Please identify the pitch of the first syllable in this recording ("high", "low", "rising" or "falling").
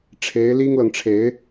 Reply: rising